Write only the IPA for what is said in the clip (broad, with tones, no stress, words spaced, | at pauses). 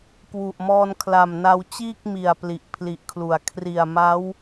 kwu˨˩ʔmɔː˧nkʰla˨˩mna˧w t͡ɕiː˥˩k̚mi˨˩a̯ pli˨˩ʔpʰli˨˩ʔkʰlu˨˩a̯ kʰri˨˩a̯ma˦˥w